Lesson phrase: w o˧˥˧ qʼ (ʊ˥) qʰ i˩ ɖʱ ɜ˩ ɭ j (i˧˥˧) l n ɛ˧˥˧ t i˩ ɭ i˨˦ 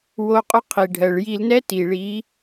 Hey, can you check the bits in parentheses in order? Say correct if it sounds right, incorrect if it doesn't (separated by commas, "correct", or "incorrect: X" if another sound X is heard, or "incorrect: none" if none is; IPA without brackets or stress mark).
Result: correct, incorrect: i˧˩˧